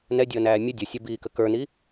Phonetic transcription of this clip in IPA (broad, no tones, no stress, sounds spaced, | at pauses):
n ɛ dʲ əː n æː mʲ ə dʲ ə sʲ ə b iː k ə k ə˞ n i